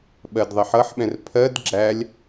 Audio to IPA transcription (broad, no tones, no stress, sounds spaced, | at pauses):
ɓ ɜ d ðˤ ɜ ħ ʌ ħ ɓ ɛ̃ r pʰ ɜ d ɡ͡ǁ æ lʲ